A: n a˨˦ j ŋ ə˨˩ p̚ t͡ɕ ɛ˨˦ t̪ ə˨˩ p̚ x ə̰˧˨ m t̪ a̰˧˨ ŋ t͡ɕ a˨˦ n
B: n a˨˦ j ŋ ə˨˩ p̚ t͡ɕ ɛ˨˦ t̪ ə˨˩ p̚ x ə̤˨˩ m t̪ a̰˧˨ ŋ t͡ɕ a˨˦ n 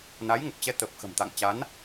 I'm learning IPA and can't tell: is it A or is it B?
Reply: B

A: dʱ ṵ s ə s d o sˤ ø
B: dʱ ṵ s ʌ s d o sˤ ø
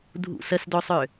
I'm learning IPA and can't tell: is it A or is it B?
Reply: A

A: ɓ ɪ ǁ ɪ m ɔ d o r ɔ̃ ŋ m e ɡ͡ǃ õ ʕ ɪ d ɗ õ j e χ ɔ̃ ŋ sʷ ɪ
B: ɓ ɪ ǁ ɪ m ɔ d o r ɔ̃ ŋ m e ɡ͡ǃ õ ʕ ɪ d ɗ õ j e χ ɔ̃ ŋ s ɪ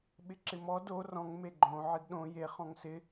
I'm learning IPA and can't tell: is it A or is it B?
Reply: B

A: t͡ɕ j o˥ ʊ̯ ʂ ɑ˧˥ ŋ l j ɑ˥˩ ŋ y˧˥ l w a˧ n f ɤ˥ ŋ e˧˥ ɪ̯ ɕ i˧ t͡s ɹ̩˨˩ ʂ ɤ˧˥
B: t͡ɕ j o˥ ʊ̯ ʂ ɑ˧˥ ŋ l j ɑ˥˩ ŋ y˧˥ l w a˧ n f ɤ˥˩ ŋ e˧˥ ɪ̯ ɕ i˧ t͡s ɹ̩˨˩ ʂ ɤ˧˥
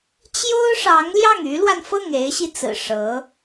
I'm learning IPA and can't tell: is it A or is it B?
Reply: B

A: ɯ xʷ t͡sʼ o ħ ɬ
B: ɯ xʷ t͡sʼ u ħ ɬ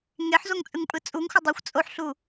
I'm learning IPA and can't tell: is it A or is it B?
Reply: A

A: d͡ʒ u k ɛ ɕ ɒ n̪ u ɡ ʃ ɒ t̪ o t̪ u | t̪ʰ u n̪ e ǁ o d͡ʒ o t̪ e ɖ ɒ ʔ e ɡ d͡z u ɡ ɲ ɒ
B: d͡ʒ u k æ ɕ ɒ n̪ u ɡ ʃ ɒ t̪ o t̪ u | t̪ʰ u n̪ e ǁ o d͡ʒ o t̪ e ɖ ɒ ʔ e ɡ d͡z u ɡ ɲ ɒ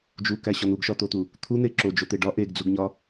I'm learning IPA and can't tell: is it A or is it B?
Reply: B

